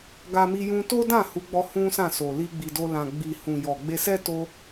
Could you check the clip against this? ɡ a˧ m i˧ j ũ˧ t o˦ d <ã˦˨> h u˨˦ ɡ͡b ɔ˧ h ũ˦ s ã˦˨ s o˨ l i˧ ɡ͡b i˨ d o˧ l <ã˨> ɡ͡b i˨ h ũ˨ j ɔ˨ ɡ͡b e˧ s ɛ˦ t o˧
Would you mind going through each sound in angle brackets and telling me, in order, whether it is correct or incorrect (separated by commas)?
correct, correct